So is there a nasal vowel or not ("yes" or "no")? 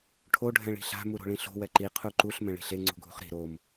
yes